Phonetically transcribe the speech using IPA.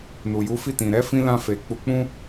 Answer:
n u˨ j u˨˦ f i˦˨ t ĩ˨ ɾ ɛ˨˦ f ĩ˧ l ã˧ f e˨ k͡p u˧ k͡p ũ˦

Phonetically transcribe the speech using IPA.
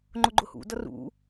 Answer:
ŋ͡ǃ ʊ ɡ͡ǃ ʊ h ṵ d ʌ r ṵ

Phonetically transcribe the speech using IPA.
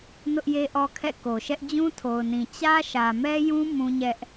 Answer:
n ʊ˦ ʔ j e˦ ʔ ɔ˦ kʰ ɛ̰˦˨ k o˨ ʃ ɛ˦ ʔ d͡ʑ ũ˦ tʰ o˨ ʊ̯ n ĩ˨ t͡ɕ ä˦ ʃ ä˨ m ɛ˦ j ũ˦ m ũ˦ ɲ ɛ˦ ʔ

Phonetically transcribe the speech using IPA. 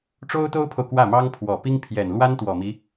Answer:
ʈ͡ʂ o˥ ʊ̯ t̪ o˥ ʊ̯ pʰ o˨ ʊ̯ k w ä˥˩ m ɑ˥ ŋ pʰ w ɔ˨˩ p i˥ ŋ pʰ j ɛ˨˩ n l w a˥ n t̪ w ɔ˨˩ m i˦

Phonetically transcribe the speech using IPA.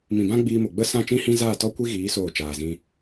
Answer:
m ĩ˨ b ã˦ ɡ͡b iː˧ m o˨ ɡ͡b ə˦ s ã˦˨ t͡ʃ ĩ˦ h ĩ˦ z aː˦˨ t ɔ˦ kʷ i˦ ɣ iː˨˦ s oː˦˨ t͡ʃ aː˨ z ĩ˧

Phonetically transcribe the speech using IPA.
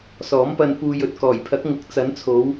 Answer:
s ɔː˨˥ m p ɐ˧ n p uː˧ j ɵ˨˥ t̚ k ɔː˨˩ j pʰ ɐ˨˥ k̚ ŋ ʊ˨˥ k̚ t͡s ɐ˨˥ n t͡sʰ o˨˧ w

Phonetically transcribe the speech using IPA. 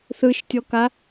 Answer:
θ ɯ ʃ tʲ ɔ k a

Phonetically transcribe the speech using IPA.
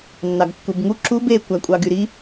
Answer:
nː ɑ ɡ kː u b ŋ u ǁ u b e kʷ æ kʷʼ ɑ ɡ y ɾ i

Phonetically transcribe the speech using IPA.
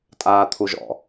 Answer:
tʼ aː t̪ʰ u ʒ ɔ̰

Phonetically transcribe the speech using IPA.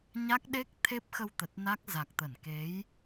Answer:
ɲ a˦˥ k̚ ɗ e˦˥ k̚ t̪ʰ e˦˥ p̚ x ə˧ w t̪ ə˨˩ t̚ n a˦˥ k̚ z a˨˩ k̚ t̪ ə˧˩ n k e˨˦ j

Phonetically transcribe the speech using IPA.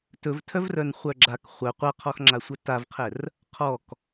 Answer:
t ɵ v tʰ œ v r œ n χʷ œ ɡ͡ǁ a k χʷ œ qʷ a qʰ ɔ x ŋ͡ǁ a sʷ œ t a v qʰ ɛ r | qʰ ɔ k

